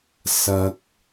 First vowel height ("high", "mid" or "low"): low